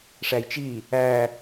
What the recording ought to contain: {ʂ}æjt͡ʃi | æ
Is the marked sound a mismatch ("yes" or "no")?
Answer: no